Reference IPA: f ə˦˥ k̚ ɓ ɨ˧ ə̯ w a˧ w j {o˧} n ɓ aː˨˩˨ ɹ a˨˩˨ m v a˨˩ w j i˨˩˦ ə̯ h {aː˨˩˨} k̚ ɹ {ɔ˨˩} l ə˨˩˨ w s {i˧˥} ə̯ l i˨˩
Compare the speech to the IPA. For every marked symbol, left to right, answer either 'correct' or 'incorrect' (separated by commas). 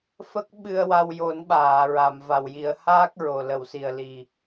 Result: incorrect, incorrect, incorrect, incorrect